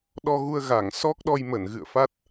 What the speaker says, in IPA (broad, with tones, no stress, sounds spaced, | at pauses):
ɗ ɔ˧ ɣ u˧ ə̯ ɣ a˧˩ ŋ s ɔ˦˥ k̚ ɗ ɔ˧ j m ə˧˩ n ɣ ɨ̰˧˨ ə̯ f a˦˥ t̚